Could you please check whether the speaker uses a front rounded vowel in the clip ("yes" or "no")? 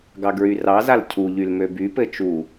yes